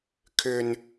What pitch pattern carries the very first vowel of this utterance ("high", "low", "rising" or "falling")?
high